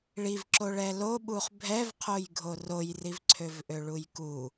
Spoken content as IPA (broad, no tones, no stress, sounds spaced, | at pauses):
ɭ i v ǁ o ɭ ɛ l o ɓ u χ bʱ ɛ v qʰ o j ɡʱ o r o j r i v ǀʰ ø v ʔ ø ɭ u j k u